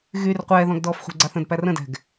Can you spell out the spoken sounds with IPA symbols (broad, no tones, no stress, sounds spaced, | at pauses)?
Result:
ɣ y r qʷ ɛː ð ɔ̃ ɡ d ɔː f χʷ æ̤ ɡ͡ǀ a θ ə̃ d p æ r ə̃ d ɛ̤ ɡ